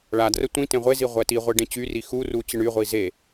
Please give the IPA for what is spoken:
ɭ a d r ə tʷ ĩ t ẽ ʁʷ e z i ʁʷ ɛ t i ʁʷ e ɖ ẽ t͡ɕ y r i x u r u t͡ɕ ə ɳ y ʁʷ i z e

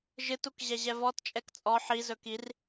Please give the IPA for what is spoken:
ʒ ɨ t u k ʑ ɛ ʑ ɛ v ɔ t t͡ʃʼ ɛ k t͡sʼ ɔ ħ i z ɵ k i r

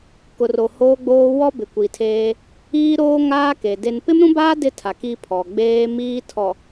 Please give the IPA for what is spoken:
k ʊ˨ r o˨ h oː˦ ɡ͡b oː˦ w ɔ˦ b ɪ˨ kʷ i˨ tʰ eː˦ | iː˦ ɾ oː˦ ŋ aː˦ k e˨ d e˨ n p ɪ˦ m ɾ ũ˦ b aː˦ d ɪ˦ tʰ a˨ k i˦ pʰ ɔ˨ ɡ͡b eː˦ m iː˦ tʰ ɔ˨

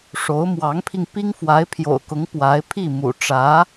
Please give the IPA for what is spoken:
ʂ o˧˥ ʊ̯ m w ɑ˧˥ ŋ pʰ i˧ ŋ p i˥ ŋ f w a˧˥ ɪ̯ pʰ j o̰˨˩ ʊ̯ k ʊ˧˥ ŋ p w a˧˥ ɪ̯ pʰ i˥˩ m ṵ˨˩ ʈ͡ʂ ä˧˥

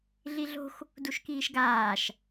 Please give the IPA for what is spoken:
ɮ i ɮ o̤ x | d u ʃ k iː ʃ ɡ aː ʃ

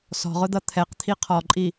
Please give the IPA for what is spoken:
s ɔ̤ ʁ ʊ d̪ ʌ t̪ʰ ɛ q t̪ʰ i qʰ ɔ ǃʼ i

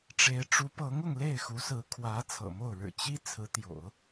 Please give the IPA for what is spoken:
ʈ͡ʂ e˧˥ ɪ̯ ʈ͡ʂ u˧˥ p ɤ˧˥ ŋ ʊ˥˧ ŋ l e˥˩ ɪ̯ x u˧˥ s ɹ̩˧˥ kʰ w ä˧˥ t͡sʰ ɤ̰˨˩ m o˥˩ ʊ̯ ɻ ɻ̩˨˩ t͡ɕ i˥ t͡sʰ ɹ̩˧˥ t̪ j o̰˨˩˦ ʊ̯

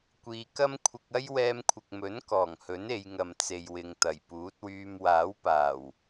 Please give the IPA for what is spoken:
kʷ iː˨ k ɐ˥ m kʷʰ ɪ˧ k̚ ɐ˥ j w ɛː˧ m kʷʰ ɪ˨ k̚ m ɵ˨˥ n k ɔː˨˩ ŋ h ɵ˨˥ n e˨˧ j ŋ ɐ˨ m t͡s e˨ j w ɪ˨ ŋ t̪ ɐ˨˩ j p uː˨˥ t̚ w yː˧ m w aː˨˥ w p aː˨˩ w

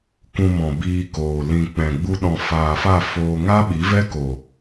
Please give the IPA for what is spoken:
k ũ˧ m ɔ̃˨ b iː˧ k oː˨ l ĩ˨ k͡p ɛ̃˨ ɡ͡b u˧ ɗ ɔ̃˨ f aː˨ f a˦˨ f oː˧ ŋ a˦ ɓ i˨˦ v ɛ˦ k o˨

